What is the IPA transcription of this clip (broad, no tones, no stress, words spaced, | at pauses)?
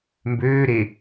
mbøːɾe